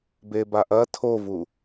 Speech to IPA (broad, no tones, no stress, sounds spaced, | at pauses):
b e b a ʔ ɐ tʰ o v u